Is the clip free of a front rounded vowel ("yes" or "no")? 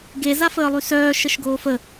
no